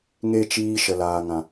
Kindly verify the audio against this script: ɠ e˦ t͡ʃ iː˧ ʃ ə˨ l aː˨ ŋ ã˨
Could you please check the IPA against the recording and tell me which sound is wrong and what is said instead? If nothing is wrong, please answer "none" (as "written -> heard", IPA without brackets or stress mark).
ɠ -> ŋ